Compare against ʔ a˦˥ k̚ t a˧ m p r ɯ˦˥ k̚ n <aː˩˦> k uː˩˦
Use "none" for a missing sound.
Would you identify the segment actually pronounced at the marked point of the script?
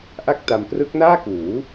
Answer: aː˥˩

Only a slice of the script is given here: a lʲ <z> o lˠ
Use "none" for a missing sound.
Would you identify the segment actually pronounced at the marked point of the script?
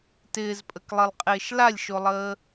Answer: ʃ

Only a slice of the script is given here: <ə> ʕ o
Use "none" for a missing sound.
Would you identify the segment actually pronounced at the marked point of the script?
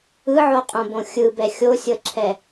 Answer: ɯ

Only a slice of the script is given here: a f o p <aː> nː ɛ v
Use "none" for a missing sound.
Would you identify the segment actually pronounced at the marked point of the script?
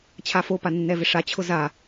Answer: a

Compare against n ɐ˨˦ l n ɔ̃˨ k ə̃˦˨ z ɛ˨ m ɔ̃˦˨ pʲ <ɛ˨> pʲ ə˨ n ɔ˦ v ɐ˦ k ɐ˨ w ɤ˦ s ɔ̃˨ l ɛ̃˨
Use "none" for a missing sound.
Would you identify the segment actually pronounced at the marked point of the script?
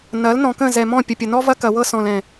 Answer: ə˨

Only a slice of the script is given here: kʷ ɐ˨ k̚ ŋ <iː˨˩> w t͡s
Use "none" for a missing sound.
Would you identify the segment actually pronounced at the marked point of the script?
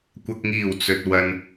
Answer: iː˨˩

